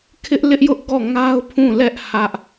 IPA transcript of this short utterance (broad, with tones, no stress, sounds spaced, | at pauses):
kʰ ɪ˦ ʔ l ɪ˦ ʔ j ʊ˦ ʔ ɡ ɔ˦˨ ŋ a˦ ʊ̯ pʰ ũ˦˨ l ɛ˦ ʔ h ä˦ ʔ